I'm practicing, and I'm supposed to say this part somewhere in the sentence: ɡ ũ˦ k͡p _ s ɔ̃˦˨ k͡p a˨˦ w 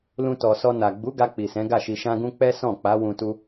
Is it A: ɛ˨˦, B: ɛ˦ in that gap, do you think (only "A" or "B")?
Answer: B